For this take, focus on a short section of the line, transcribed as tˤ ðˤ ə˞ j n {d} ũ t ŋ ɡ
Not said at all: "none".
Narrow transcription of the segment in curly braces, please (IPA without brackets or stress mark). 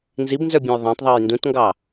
d